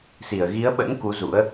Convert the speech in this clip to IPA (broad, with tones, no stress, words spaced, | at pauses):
si˧˩ə̯ ɣi˨˦ə̯ɓə̰˧˥n ku˨˦zṵ˧˥ə̯